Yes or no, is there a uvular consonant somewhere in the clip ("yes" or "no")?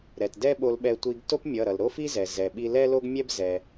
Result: no